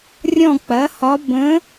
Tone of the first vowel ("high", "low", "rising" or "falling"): falling